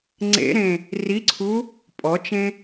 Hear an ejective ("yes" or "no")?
yes